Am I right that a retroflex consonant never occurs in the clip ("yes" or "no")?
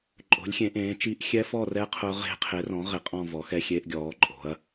yes